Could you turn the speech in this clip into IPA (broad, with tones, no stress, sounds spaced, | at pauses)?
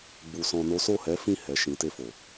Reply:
ɡ͡b u˨ s ɔ̃˧ n o˦ s o˦˨ h ɛ˨˦ f ĩ˦˨ h ɛ˨ ʃ ĩ˨ t e˧ f o˨